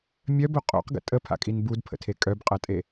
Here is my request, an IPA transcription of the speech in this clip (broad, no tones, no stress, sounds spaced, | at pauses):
mʲ œ b o qʼ o̰ q ɡ ə̰ tʼ ə pʰ a̰ kʼ i n b u d pʰ ə̰ tʰ e kʼ œ b qʼ ɐ tʼ e